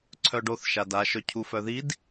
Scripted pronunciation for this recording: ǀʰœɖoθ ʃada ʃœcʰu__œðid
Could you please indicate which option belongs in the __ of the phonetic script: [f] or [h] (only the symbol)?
f